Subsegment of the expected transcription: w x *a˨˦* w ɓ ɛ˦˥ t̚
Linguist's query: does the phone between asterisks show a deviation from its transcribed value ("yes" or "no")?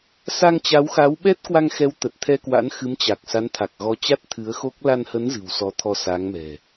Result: no